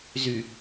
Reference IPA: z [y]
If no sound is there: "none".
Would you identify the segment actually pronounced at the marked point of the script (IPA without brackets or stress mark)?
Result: y